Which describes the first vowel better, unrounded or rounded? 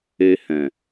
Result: unrounded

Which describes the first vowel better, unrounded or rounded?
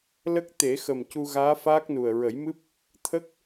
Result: unrounded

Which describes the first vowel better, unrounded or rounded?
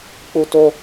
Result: rounded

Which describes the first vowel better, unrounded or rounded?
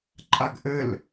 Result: unrounded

